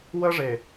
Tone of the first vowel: high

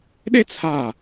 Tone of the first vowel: high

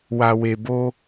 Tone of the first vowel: low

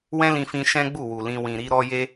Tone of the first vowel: high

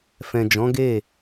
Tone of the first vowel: low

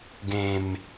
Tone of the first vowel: low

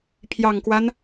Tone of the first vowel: low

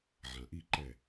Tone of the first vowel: low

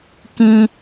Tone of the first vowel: high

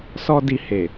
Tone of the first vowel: high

